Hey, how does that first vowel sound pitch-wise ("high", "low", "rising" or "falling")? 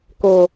low